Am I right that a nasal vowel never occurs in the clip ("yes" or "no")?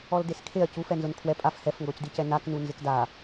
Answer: yes